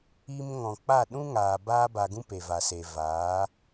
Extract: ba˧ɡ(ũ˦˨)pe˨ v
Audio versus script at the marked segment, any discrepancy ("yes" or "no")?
yes